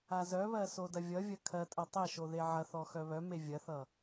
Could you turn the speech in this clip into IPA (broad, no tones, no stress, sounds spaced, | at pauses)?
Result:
a z œ β ɜ s o d ɐ vʲ ʌ vʲ ɐ kʰ ɜ tʼ ɐ tˤ ɛ ʃ o ð e ʕ ɐ θ ɔ x œ β œ m e vʲ ɐ θ ʌ